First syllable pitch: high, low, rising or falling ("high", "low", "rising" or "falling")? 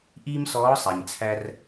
high